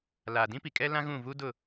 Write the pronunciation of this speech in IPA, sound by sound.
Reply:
laː˨dĩ˦pi˨kʼɛ˦ lã˦ɣũ˦˨vu˦dʊ˦˨

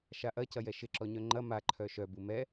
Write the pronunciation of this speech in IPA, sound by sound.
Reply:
ʃaʔɐcɐjɛ ʃɪǁɔɲœ ŋ͡ǃɐ maǃʰœ ʃœ bumɛ

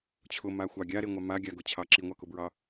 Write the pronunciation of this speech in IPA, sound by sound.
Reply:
t͡ɕʰʊmaxʷɑ ɡʲaɾeŋʷɑ maɡʲaɡʊt͡ɕʰɑ ǁiŋʷɑkʊbɹɑ

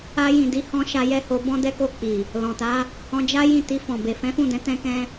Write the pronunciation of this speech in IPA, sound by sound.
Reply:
a˧jĩ˨di˨˦hɔ̃˧ ʃa˧jɛ˦ho˧ bɔ̃˦dɛ˦ko˦˨k͡pi˨ | lɔ̃˨ta˨˦ | hɔ̃˧d͡ʒa˦ jĩ˦˨ti˧fɔ̃˨ be˨fɛ̃˨˦fũ˦˨dɛ̃˨˦ tɛ̃˦kɛ̃˦

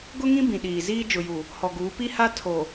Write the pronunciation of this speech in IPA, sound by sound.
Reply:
ɡʊ˦ŋĩ˦ bĩ˨ɗiː˨ziː˦ d͡ʒʊ˨ju˨ | hɔ˨ɡuː˨˦ pi˦ha˦ tʰo˨

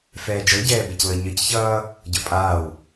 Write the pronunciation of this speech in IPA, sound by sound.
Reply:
fɛːd͡ʒɤɟɛː beclɤɲɤcçʌː | ɟɤpʼaːw

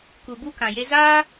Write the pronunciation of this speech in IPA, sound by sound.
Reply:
ku˨bu˦ kã˨je˦ zaː˦

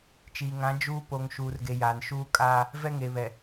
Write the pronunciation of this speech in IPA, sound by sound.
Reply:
t͡ʃiː˨ŋã˨˦ d͡ʒuː˦ po˨ŋʃuː˨rɡe˨ jaː˨n ʃuː˦kʼaː˦ | vɛ˦ŋe˨βɛ˨

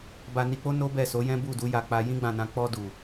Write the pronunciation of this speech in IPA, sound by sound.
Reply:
ba˧ni˧k͡po˦ no˦bɛ˦˨so˨˦ jɛ̃˦bu˦˨du˨˦ja˧ k͡pa˧ jĩ˦ɡ͡bã˦˨nã˧ k͡pɔ˧du˨

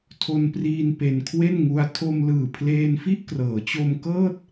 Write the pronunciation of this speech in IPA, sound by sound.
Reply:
tʰo˧npriː˧n pe˧nkʰwe˥˩nŋu˦˥a̯ tʰo˧mlɯː˨˩ pʰleː˧nfi˥˩ʔkrɤː˩˦t͡ɕo˧m kɤː˥˩t̚

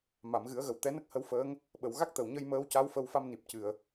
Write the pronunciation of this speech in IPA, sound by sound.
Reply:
ma˨˩˨mɣɨ˨˩˦ə̯ɣə˨˩w t̪ɛ˧˥nə˦˥k̚hə˧˥wfəː˧˥ŋ | ɓə˨˩˨wɣa˦˥k̚t̪ə˨˩wɲə˧j məː˧˥wca˧˥wfə˧wfa˧m ni˨˩p̚cɨ˨˩˨ə̯

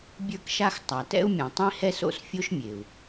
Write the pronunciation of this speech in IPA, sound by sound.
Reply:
bʲə˞˥kʃa˥x tˤa˩tɛ̰˥u̯mʲã˩ tˤĩ˥hɛ˥so̰˥s fʲo˥ʃmʲe˩u̯

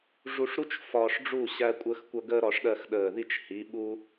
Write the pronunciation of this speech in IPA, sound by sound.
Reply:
ʐu˧ʂɾu˥t͡ʃ fɒː˧ʂɖ͡ʐu˥˨ ɕæ˧kʷʼəː˧xkʷʌ˧ ɡəː˥ɾɒ˧ʂɗɜ˥˨x ɗəː˧˩ði˥˨t͡ʃ hi˨˥ɓu˥

